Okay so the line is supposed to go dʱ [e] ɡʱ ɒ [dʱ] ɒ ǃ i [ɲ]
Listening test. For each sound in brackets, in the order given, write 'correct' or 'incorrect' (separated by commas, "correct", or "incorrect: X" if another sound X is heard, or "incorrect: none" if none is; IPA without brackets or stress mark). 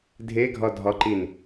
correct, correct, incorrect: n